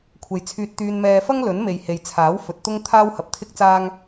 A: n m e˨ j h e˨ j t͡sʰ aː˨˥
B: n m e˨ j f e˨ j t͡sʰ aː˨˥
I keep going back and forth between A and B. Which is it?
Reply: A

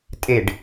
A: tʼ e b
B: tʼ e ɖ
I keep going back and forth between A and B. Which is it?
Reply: B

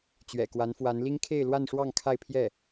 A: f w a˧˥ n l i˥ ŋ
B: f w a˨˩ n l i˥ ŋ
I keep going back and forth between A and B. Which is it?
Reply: A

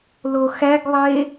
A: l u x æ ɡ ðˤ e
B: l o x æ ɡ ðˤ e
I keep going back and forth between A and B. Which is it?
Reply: B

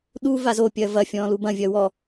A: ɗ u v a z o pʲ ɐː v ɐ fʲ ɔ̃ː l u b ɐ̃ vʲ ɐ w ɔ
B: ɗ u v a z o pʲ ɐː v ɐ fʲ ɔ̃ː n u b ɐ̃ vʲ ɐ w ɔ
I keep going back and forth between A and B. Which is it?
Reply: A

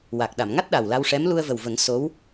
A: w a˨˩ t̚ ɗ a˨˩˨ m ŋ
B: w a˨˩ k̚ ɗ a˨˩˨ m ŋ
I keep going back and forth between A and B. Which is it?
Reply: B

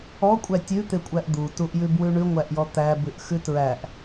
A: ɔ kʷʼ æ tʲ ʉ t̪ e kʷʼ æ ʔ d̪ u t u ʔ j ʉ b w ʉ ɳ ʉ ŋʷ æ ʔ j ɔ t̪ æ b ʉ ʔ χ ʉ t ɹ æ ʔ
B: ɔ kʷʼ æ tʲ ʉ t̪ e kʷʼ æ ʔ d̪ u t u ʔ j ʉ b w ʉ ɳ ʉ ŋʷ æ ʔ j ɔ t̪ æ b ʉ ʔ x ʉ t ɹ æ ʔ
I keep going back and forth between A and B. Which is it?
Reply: B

